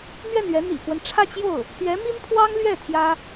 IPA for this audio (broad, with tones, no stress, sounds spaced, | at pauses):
n̪ ɥ ɛ˥˩ n ɥ ɛ˧˥ n̪ ḭ˨˩ k w ə˦ n ʈ͡ʂʰ ä˥˧ t͡ɕ j o˥˩ ʊ̯ | t̪ ɥ ɛ˧˥ m i˥ n pʰ w ɑ˥ ŋ l ɥ ɛ˥˩ t̪ʰ j ä˥